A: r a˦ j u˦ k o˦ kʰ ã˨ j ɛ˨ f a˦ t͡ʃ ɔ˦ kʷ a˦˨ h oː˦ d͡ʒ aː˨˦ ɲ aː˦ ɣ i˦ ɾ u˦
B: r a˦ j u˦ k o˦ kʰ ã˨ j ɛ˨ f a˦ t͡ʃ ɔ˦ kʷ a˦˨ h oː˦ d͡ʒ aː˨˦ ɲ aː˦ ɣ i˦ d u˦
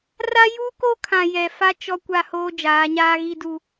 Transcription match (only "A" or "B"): B